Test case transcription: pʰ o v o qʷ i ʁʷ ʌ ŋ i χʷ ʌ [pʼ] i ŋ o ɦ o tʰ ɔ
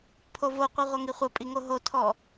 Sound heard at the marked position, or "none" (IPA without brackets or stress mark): pʼ